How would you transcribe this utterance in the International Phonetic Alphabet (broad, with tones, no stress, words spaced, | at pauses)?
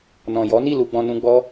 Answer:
nɔ̃˨jɔ˨˦ni˦˨ lu˧ɡ͡bɔ̃˧nũ˧ɡ͡bɔ˦